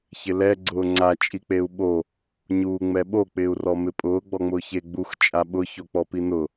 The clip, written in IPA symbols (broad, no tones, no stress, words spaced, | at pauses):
çɪlɛ ɡ͡ǀʊːŋ͡ǀa t͡ʃʼik͡peu̯ɓo | ɲuːŋ͡mɛɓo k͡pɪːu̯rɔmɪpʼʊː ɡ͡bɔŋ͡mʊːçe ɡ͡bux t͡ʃʼaɓʊ çok͡pɔpinʊ